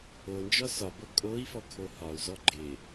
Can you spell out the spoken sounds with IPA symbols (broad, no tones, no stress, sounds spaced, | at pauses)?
o n d͡ʒ ɔ s ɒ b o kʼ o i̯ f ɔ kʰ o h ɒ u̯ z ɔ ɡ͡ǃ ɪ